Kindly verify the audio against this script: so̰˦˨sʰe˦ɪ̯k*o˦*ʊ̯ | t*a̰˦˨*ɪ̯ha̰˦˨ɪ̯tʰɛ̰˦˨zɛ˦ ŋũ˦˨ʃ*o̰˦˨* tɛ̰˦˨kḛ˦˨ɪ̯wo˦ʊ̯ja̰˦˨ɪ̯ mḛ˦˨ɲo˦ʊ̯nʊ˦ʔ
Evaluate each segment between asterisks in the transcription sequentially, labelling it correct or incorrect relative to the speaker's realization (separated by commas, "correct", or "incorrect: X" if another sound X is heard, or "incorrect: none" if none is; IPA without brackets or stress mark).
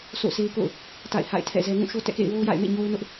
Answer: incorrect: o̰˦˨, correct, incorrect: o˦